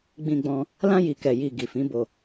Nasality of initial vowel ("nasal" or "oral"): nasal